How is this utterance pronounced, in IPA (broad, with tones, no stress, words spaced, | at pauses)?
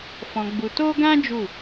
fɔ̃˧ɡ͡bu˧to˦ɡã˦ d͡ʒu˦˨